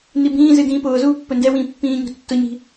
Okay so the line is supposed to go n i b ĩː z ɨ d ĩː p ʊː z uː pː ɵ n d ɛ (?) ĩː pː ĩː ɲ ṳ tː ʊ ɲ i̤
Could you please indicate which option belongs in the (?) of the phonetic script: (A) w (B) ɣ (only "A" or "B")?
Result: A